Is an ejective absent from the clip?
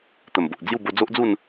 yes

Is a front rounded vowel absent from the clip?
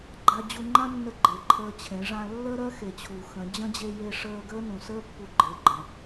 yes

